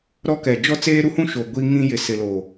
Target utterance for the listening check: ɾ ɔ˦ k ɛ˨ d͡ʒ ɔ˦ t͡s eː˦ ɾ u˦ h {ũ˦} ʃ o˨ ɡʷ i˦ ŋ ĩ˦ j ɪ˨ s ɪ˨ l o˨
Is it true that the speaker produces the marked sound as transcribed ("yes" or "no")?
yes